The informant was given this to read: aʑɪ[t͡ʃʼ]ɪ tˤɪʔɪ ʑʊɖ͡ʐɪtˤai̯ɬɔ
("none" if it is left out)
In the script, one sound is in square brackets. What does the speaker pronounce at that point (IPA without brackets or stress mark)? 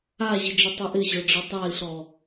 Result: d͡ʒ